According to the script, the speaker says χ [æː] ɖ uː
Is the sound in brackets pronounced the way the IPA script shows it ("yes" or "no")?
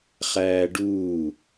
yes